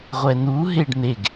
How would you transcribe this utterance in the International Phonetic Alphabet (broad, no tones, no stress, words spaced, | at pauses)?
ʁʷɛnu ɦeɖn̪eɡ